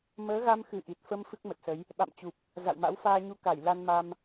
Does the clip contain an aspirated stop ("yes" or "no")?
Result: no